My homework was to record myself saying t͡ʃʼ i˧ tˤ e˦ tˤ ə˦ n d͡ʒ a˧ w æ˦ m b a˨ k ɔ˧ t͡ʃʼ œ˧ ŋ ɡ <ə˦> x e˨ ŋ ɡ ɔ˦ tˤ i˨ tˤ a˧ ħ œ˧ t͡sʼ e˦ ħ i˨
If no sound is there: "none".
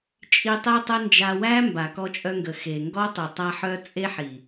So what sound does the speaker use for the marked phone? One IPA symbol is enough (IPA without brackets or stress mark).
ə˨